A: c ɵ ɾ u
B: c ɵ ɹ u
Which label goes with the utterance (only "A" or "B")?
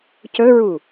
B